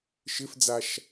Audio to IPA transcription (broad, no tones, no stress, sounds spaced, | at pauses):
ʃ ɪ f d͡z a ʃ